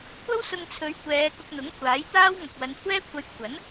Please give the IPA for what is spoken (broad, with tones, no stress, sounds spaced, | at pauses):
kʷʰ ɐ˥ w s ʊ˧ ŋ t͡sʰ ɵ˨˧ ɥ kʷ ɛː˨˧ k ʊ˧ k̚ n̪ ʊ˨˥ ŋ kʷʰ aː˨˥ j t̪ aː˥ w ŋ ɐ˨ k̚ w ɐ˨˧ n kʷʰ ɛː˥ kʷʰ ɐ˧ j kʷʰ ɐ˨˥ n